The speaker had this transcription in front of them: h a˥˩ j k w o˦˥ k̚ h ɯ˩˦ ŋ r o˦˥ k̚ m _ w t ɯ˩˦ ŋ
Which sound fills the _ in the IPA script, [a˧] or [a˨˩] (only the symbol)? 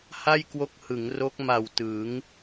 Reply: a˨˩